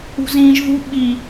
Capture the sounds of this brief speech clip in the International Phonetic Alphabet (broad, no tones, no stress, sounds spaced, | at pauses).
ṳ z ĩː ʒ ð ṳ ɓ i